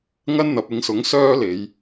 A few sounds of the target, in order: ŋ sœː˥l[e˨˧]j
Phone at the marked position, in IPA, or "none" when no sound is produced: e˨˧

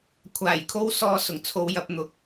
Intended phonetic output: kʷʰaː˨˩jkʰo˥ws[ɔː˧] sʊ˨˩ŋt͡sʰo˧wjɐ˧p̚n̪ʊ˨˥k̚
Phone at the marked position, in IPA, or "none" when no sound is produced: ɔː˧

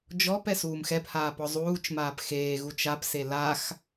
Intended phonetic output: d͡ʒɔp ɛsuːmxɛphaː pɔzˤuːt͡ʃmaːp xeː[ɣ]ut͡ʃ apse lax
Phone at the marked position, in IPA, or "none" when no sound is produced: ɣ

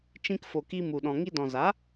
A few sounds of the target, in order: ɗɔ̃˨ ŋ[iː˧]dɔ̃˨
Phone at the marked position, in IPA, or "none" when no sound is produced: i˧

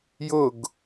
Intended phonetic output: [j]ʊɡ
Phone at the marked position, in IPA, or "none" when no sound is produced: j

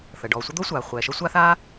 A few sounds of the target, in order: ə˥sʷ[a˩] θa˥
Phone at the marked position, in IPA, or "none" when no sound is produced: a˥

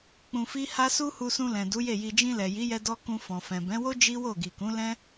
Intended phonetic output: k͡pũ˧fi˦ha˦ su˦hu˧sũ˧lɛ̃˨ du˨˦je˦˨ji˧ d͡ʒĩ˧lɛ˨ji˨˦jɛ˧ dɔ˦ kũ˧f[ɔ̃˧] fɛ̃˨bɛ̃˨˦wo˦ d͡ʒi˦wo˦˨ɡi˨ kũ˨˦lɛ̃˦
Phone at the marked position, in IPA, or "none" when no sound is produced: ɔ̃˨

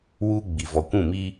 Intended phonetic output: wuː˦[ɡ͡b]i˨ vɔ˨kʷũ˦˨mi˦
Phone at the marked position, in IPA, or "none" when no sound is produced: ɡ͡b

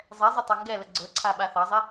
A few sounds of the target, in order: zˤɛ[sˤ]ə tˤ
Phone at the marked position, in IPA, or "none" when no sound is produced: zˤ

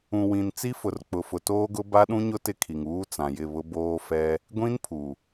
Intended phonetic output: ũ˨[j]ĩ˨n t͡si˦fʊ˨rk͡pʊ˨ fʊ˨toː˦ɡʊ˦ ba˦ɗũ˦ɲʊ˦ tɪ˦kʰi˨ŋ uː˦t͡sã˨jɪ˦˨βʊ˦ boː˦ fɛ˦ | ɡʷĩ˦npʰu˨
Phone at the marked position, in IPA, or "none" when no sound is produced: w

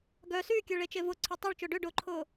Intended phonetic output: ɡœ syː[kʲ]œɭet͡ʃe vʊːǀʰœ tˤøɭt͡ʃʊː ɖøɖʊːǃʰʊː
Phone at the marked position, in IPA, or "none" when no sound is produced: kʲ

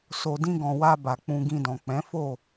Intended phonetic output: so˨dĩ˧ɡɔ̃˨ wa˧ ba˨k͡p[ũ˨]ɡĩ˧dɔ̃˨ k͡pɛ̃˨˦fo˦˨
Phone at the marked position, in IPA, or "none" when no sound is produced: ũ˧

